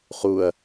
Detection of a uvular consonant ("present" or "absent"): present